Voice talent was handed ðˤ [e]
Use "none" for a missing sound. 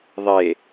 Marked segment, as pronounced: e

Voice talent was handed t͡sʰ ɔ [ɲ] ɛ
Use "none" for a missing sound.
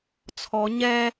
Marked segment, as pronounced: ɲ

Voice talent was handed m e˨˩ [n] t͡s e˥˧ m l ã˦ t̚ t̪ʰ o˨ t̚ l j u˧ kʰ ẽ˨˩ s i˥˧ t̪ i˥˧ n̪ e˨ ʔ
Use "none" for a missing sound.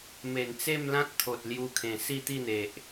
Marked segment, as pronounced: n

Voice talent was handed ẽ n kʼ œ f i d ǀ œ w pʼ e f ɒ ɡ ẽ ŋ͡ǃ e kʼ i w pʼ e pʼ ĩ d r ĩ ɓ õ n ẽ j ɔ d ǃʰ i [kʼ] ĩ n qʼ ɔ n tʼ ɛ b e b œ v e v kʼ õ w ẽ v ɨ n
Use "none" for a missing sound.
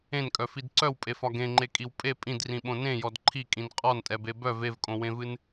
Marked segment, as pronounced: kʼ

